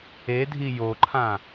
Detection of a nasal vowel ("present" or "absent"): present